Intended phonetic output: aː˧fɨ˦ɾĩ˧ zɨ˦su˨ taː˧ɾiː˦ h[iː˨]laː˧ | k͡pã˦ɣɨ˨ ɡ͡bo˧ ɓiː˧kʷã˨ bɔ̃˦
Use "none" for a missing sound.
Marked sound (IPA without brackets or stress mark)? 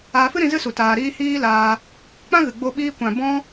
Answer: iː˦